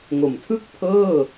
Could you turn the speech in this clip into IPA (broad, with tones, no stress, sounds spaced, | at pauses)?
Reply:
ŋ o˨˩ m tʰ ɯ˥˩ k̚ pʰ ɤː˥˩